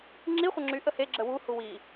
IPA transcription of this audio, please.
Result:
ŋ͡ǁ i χʷ ə ŋ͡ǁ y ʔ ə h e ɡ͡ǁ ə w u h u w i

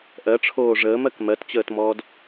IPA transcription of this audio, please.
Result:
ʔ ɜ ʈ͡ʂʰ oː ʐ əː m ɜ k m ɜ t t͡ɕ əː t m ɔː d

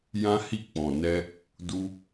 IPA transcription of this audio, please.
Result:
j ã˦ h i˦˨ k͡p ɔ̃˨ n ɛ˧ | d u˦

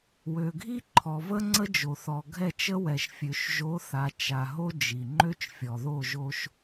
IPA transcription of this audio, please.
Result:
w ø˨ ɡʱ i˦ ǃʰ ɔ˨ v ə˦ ŋ͡ǀ ə˦ d͡ʒ o˨ θ ɔ˨ ɡʱ ɛ˦˨ t͡ʃ ə˦ w ɛ˨ ʃ fʲ ø˨ ʃ ʒ o˨˦ θ a˨ t͡ʃ a˨ ɦ o˦ d͡ʒ i˨ ŋ͡ǃ ø˦ t͡ʃ fʲ ɔ˨ ð o˦˨ ʒ o˦ ʃ

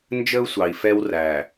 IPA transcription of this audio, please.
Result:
n d͡ʒ ə˦ u̯ sʷ ɑ˨ i̯ f ɛ˦ w r æ˨

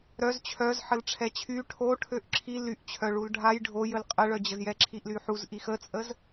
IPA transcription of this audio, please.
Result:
ɾ œ z t͡ɕʰ œ z ħ ə l ʈ͡ʂʰ ɛ t͡ɕʰ y ʈʰ o ʈʰ ø ʔ ǁʰ i l y ʔ t͡ɕʰ œ ɭ u l ɖʱ a j ɖʱ o j ə l qʼ ə ɭ œ d͡ʑ ə z j ɛ ǁʰ i ʔ l y ħ u z ʔ i x ə t͡sʼ ə z

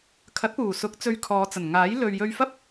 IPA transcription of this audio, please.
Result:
kʰ ɐ˨˥ t̚ p uː˨˩ s ʊ˨˥ k̚ t͡s ɵ˧ ɥ kʰ ɔː˨˧ t͡s ɐ˨˩ n ŋ aː˨˥ j l ɵ˨ ɥ j ɵ˧ ɥ f ɐ˥ p̚

